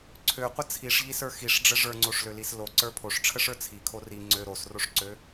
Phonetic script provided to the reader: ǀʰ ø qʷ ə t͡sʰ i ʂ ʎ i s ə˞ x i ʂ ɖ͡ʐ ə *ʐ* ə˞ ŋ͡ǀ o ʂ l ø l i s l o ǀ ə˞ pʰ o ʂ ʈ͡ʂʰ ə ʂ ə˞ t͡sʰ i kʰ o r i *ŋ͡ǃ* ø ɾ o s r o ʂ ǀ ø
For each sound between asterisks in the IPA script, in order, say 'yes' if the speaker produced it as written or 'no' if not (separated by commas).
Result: yes, no